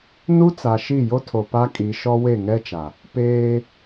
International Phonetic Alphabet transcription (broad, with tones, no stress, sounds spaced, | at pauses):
n u˦ t͡s a˨ ʃ i˦˨ j o˦ tʰ o˨ p a˦ kʼ i˨˦ ʃ ɔ˦ w e˦˨ ŋ ɛ˦ t͡ʃ a˨ | p eː˦